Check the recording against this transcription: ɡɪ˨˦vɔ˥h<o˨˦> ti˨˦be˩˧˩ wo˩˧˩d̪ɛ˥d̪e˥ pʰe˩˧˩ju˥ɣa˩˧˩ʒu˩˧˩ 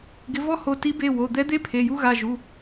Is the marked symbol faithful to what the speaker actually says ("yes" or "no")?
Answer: yes